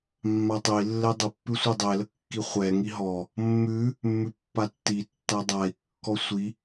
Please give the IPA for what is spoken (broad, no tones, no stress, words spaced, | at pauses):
mːatˤɛi̯lːɛ dˤəpːʉ sʷədˤɛlə kːiχʷɛŋi ɦɔ | mːʉ | mːʉpːatːitːa dˤai̯kːɔ sʷi